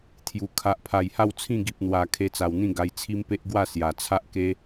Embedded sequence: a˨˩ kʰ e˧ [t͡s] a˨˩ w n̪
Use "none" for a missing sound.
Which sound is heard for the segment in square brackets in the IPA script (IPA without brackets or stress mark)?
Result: t͡s